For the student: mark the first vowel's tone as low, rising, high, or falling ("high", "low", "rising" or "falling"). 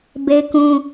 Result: high